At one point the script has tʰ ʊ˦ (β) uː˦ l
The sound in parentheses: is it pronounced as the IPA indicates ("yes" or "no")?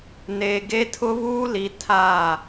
yes